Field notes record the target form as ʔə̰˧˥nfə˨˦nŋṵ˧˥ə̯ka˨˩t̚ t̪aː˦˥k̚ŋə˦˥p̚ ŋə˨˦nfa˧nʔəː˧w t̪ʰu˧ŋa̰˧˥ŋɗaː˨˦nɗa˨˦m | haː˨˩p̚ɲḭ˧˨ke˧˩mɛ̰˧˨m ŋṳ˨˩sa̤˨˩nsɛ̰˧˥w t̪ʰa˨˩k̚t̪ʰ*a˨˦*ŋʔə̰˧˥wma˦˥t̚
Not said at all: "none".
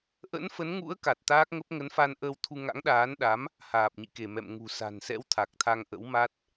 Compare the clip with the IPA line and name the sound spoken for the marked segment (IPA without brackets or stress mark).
a˧